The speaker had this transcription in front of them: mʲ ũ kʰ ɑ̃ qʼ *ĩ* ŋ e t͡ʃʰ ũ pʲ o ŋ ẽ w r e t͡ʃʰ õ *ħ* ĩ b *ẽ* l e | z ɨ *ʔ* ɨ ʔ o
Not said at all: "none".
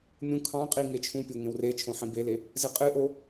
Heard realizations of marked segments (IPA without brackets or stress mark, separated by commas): i, ħ, e, qʼ